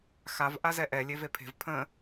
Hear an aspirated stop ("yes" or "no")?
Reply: yes